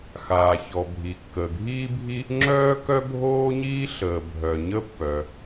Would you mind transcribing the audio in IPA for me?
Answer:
x aː˩ ç ɔ˩ bʱ i˩ kː əː˩ ɡʱ iː˥ bʱ i˥ | ŋ͡ǁ œː˥ k œ˥ bʱ oː˥ ɲ iː˥ ɬ əː˩ bʱ œ˩ ɲ ə˥ pː œ˩

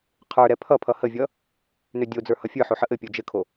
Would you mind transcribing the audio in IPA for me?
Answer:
qʰ ə˞ ɾ ɛ pʰ ʌ pʰ ʌ h ə vʲ ʌ | n ø dʲ o d͡z ə˞ h ʌ fʲ ə˞ ħ o ħ ə ʔ ɘ pʲ o d͡ʒ ɘ kʰ o

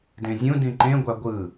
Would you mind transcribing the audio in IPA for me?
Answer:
d ẽ zʲ ũ d ĩ ǃ ẽ ɡʷ a ɡʷ ɯ

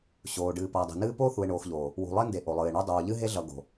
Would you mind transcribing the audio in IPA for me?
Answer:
ɕ oː˨ ɖ ɨː˨ p ʌː˨ dˤ e̤˨ n ɨː˦ p oː˦ θ u˨ e̯ ɳ oː˨ x ʎ oː˨ | w ṳ˨ lˠ e˦ n d e˨ ʔ o˨ lˠ ɨː˨ e̯ ɳ o˦ dˤ oː˨ ʎ ɨ˦ ɦ e˦ ɮ ʌ˨ ɡ o̤˨

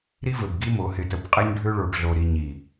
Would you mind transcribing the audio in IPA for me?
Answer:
ɾ i˦ v ɘ˨ b ɡ i˦ m o˨˦ h ɪ˨ t ə˨ b qʼ e˦ ɲ ɖʱ ø˦ ɭ o˨ ʈ ɮ o˨ ɾ i˨ ɲ i˨

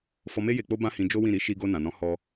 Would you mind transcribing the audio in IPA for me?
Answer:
f ɔ˧ m e˦ j e˧ k͡p o˦ b ã˦ h ĩ˧ d͡ʒ o˦ w ĩ˦˨ ɾ i˨˦ ʃ i˧ ɡ o˧ n ã˨ n ɔ̃˨˦ h ɔ˧

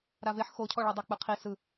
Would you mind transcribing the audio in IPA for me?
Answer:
ɾ a v e ħ x o cʰ ɔ ɭ ɔ dˤ e k͡p ɯ qʰ i s ɯ

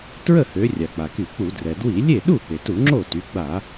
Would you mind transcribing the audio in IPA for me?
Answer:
t ɹ ə˥˩ h ø˩˧ rʲ a˩ k͡p a˩ k y˧˩˧ k͡p u˧˩˧ d r ɛ˩ d w i˧˩˧ lʲ e˥˩ ɗ u˥˩ p e˩ t u˧˩˧ ŋ͡ǁ o˥˩ t y˩˧ ɡ͡b a˧˩˧

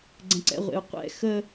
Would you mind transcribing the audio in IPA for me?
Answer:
ɡ͡ǀ ɛ̃ ǀ ɛ̰ ʁʷ ḛ u̯ qʷ ɛ̰ x ə

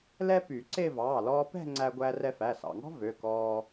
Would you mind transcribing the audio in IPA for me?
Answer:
l ɛ˥ p y˨˩˦ ǀ e˥˧ v ɑː˩˧˩ l ɔː˧ p ɛ̤˥˧ ŋ͡ǀ æ˧ ɡʷ æ˧ r ɛ˧ f æ˩˧˩ s ɑ̰˩˧˩ ŋ ɔ̤˥ v ø˩˧˩ k ɔː˧

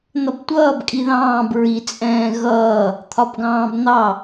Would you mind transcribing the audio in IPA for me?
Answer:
n̪ ʌ b tʷ ʌː b kʼ i ð ɑ̃ː b ɹ i t͡sʼ ɛ̃ː ɣ ʌː | t̪ʰ ɒ b ɡ ɑ̃ː b n̪ ɑ

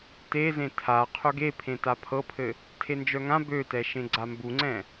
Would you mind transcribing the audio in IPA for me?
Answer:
t e z ẽ tʰ a qʰ ø ɡ e pʰ ẽ t a pʰ ɤ pʰ ɘ | tʰ e n d͡ʒ œ ŋ ã b ø t ɛ ʃ ẽ ɡ͡ǀ a m b u ŋ͡ǀ ɛ̃

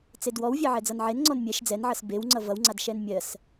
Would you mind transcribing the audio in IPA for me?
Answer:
t͡s e d w ɔ w vʲ ɜ ʕ ɛ d͡z ʌ n ʕ e n ŋ͡ǀ ɔ n mʲ ɛ ʃ d͡z ɛ n ʕ ʌ s b e w ŋ͡ǀ ʌ v ʌ w ŋ͡ǀ a d ʃ ɛ n mʲ ɜ s

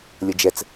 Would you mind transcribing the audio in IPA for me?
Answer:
lʲ ə d͡ʒ ɛ t͡s

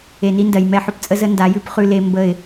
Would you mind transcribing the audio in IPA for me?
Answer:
e˨ n i˦ n d ɜ˨ j m ɛ˦ ħ ʊ˦ p t͡sʼ ə˦ z ə˦ n d a˨˦ j ʉ˦ p χ ʉ˦ l e˦ m b ə˦˨ ɪ̯

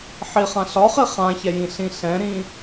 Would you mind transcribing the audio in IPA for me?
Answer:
ħ i χ ã ɬ ɒ χ i χ ã ç ɛ j ĩ ɬ ĩ ɬ ɛ̃ ɾ ĩ

